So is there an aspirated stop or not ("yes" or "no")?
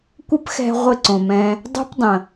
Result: no